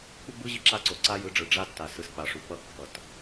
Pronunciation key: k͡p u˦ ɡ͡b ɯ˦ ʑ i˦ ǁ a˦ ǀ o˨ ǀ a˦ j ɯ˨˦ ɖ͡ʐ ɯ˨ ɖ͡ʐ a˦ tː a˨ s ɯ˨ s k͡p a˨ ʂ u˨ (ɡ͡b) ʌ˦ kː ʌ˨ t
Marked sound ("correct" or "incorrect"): incorrect